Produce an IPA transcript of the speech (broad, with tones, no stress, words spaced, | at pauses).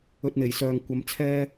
ɵ˧t̚n̪e˨˩jsœː˨ŋ kʷɐ˧mt͡sʰɛː˥